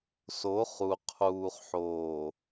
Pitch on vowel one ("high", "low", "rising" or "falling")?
rising